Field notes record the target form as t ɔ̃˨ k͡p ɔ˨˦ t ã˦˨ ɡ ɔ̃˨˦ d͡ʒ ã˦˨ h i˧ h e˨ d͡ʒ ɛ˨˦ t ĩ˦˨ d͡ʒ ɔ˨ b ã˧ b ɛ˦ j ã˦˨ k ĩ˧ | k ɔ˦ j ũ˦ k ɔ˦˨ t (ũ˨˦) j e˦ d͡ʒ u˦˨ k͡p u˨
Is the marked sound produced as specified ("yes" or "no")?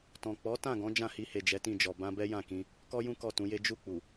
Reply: yes